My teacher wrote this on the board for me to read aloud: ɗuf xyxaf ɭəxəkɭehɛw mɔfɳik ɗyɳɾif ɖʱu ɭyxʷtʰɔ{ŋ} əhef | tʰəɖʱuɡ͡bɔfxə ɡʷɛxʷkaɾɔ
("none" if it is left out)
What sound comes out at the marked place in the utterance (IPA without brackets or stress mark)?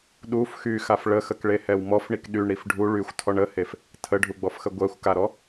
ɳ